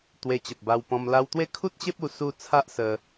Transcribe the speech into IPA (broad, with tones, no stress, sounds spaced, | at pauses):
t̪ w e˧ t͡ɕ ə˨ p̚ b a˧ w p ɔ̃˧ m l a˧ w t̪ w e˦ kʰ u˦ t̚ ɕ e˦ p̚ u˧ s u˦ t͡sʰ a˦ ʔ s ə˧